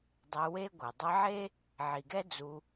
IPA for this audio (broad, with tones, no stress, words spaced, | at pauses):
dˤe˧we˦ɡʷɛ˨ dˤe˧ʕe˦ | ʕi˨ɡɛ˦ d͡zu˧